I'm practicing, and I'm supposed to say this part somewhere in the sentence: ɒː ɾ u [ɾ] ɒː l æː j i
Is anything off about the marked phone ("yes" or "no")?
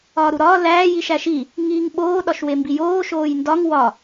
no